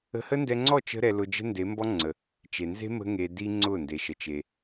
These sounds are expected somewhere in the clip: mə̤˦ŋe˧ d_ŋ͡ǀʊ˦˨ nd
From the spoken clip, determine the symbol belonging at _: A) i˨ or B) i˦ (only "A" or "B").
B